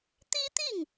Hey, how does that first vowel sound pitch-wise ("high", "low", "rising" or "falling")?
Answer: high